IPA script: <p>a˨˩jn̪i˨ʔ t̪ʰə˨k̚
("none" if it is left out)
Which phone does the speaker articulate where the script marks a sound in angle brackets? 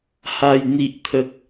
h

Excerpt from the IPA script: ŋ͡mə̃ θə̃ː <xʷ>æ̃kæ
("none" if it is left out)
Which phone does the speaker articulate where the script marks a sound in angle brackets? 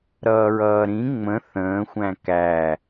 xʷ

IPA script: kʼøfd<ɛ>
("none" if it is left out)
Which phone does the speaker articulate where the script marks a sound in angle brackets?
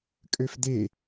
e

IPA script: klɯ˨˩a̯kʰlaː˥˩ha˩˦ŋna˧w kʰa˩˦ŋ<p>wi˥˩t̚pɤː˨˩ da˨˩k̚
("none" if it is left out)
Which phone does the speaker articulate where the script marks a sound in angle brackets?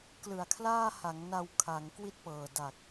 k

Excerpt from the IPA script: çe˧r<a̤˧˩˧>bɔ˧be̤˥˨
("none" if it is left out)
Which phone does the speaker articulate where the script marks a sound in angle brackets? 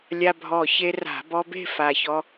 a̤˧˩˧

